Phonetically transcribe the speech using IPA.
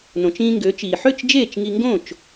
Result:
nõ˩t͡ʃĩː˧ŋɡøː˩˥t͡ʃiː˩ ħø˥˩t͡ʃ d͡ʒeː˥˩t͡ʃŋi˧ŋɡõ˥˩t͡ʃ

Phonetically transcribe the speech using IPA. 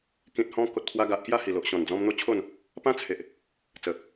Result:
kĩ˨t̚hɔ̃˧ ko˨t̚pʰwa˧ɡa˨ʔkja˥˧ hi˨˩lo˨ʔɕɔ̃˨˩nd͡zɔ̃˧m n̪o˦t͡ɕʰo˥˧n | pã˦t͡sʰe˨ʔ | t͡sə˨˩

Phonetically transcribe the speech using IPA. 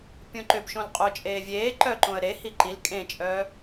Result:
pʲõǃʏbʃõl qʼot͡ʃʼeː vʲeː ǃœ ǃõə̯ɾehi ǃil kʼẽt͡ʃʼœː

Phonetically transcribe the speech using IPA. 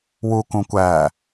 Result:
wukũ kʷæ

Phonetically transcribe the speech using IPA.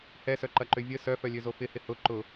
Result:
hɛsœǃɐǃø vʲə sœfœlʲøzo fɪhɪ hʊ ǃʊ

